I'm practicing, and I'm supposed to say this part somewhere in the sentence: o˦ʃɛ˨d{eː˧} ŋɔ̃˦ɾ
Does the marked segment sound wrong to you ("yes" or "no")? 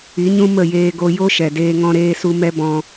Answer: no